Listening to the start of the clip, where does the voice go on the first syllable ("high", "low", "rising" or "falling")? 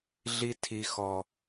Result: high